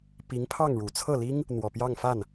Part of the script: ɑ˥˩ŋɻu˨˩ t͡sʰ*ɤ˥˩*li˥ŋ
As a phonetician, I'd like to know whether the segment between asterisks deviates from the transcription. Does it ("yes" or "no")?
no